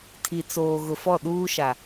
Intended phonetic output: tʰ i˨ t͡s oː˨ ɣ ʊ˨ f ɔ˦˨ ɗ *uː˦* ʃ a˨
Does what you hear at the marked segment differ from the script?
no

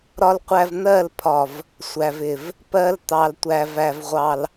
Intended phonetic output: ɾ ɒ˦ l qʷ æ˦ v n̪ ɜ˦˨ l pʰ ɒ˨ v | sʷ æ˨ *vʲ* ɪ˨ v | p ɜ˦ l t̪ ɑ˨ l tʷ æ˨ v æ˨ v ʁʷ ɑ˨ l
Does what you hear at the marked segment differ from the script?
yes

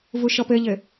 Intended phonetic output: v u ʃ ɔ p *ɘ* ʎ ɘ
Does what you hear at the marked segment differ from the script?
no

